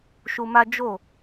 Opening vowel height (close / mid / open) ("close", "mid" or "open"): close